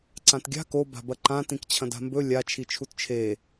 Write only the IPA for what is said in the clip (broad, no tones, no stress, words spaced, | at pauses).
ǀãtɡʲa̤ ko ba̤bɐǃã tĩkt͡ɕʰɐ̃da̤mbɵ lʲa t͡ʃʰit͡ʃʰutt͡ʃʰe